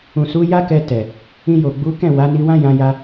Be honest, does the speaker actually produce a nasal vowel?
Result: yes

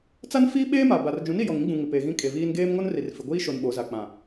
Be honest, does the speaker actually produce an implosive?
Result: yes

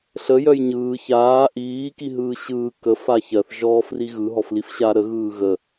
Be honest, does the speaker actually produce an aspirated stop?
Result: no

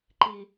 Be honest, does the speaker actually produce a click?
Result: yes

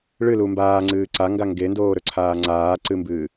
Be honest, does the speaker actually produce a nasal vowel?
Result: no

